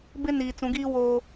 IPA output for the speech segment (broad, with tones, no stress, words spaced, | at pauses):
bɪ˦ niː˨t͡sũ˨˦ɡiː˦ woː˨